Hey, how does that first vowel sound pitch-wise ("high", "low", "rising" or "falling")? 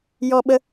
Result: high